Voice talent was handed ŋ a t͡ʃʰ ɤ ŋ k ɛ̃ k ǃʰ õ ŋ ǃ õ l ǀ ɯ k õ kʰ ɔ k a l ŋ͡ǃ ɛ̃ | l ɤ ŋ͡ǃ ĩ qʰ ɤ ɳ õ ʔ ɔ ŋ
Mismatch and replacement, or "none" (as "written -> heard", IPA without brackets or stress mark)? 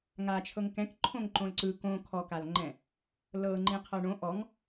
none